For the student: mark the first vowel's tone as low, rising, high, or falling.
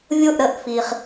falling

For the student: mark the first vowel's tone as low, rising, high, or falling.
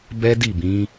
high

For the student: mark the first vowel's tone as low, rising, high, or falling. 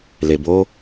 low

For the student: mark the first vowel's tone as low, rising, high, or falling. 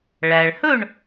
low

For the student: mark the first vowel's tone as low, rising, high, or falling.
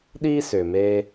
high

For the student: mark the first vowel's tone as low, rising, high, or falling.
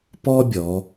high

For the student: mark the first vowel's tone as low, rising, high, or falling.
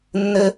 high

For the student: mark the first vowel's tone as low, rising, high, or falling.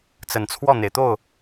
low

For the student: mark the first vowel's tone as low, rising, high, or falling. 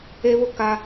high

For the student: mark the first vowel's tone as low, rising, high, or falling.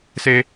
high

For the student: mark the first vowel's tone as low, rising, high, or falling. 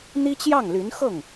high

